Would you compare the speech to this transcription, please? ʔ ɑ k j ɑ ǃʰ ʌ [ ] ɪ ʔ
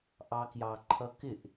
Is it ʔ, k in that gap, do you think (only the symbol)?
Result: k